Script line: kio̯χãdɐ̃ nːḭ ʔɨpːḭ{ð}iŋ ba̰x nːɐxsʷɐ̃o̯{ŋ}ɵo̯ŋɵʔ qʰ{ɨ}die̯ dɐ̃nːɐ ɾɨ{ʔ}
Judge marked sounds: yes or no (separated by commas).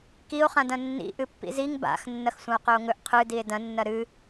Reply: no, no, yes, no